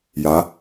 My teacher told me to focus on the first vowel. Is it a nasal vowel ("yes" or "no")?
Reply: no